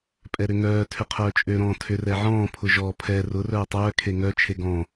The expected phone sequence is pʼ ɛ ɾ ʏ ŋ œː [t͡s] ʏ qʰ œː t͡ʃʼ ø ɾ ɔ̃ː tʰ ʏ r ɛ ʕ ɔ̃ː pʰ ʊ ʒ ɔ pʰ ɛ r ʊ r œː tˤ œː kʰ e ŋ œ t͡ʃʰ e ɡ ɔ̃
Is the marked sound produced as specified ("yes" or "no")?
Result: no